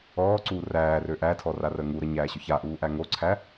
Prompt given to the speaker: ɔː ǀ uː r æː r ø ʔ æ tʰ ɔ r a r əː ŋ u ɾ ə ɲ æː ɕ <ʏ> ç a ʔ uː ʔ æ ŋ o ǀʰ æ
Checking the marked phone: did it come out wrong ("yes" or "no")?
no